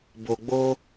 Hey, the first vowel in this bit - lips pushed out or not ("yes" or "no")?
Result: yes